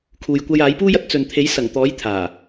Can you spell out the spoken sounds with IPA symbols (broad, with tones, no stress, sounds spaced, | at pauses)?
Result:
kʰ uː˨ j kʷ ɐ˧ j aː˨˥ j p uː˥ j ɐ˧ t̚ t͡s ɵ˨ n t̪ʰ e˨˥ j s ɐ˨˩ ŋ t̪ ɔː˨˥ j t̪ʰ aː˨˩